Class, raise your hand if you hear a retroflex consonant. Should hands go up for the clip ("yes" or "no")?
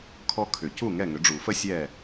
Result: yes